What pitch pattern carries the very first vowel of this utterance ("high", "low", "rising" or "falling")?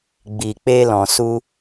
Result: low